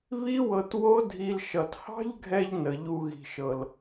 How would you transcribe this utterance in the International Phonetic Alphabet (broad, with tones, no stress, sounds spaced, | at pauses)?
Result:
β i˦ w ɤ˧ t w o˦ dʱ i˧ l ʃ ʌ˨ t h ɑ̤˦ ʎ ɡʱ ɛ˧ ʎ n ə˨ ʎ u˧ ɣ i̤˨ ʃ ɤ˨ l